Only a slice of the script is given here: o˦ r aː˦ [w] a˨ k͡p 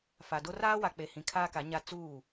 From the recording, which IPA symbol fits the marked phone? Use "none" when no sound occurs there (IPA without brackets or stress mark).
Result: w